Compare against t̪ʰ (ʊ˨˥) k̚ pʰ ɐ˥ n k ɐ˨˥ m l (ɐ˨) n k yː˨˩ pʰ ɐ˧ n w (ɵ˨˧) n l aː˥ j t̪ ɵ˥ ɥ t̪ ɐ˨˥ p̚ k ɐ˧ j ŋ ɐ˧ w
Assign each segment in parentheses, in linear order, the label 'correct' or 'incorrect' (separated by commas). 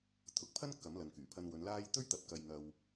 incorrect, correct, correct